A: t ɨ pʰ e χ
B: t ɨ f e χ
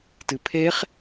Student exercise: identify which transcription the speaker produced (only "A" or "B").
A